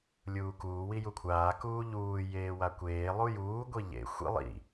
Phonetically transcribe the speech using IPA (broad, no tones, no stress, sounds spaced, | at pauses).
lʲ uː k uː w i j u kʷʰ aː k uː ʎ uː j eː w a kʷ eː lˠ u j uː ɡʷ i ʎ ḛ xʷ ḭ lˠ ḭ